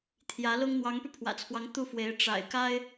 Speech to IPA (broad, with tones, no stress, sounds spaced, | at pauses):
t̪ʰ j ä˧˥ l ʊ˥ ŋ n̪ w ɑ˧˥ ŋ p y˧ pʰ w ä̰˨˩ t͡sʰ w ɑ˧˥ ŋ t̪ u˥˩ f w e˧˥ ɪ̯ ʈ͡ʂ a̰˨˩ ɪ̯ k a˥ ɪ̯